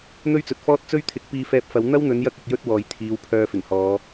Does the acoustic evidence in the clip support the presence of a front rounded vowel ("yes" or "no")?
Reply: yes